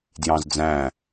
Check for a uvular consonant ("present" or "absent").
absent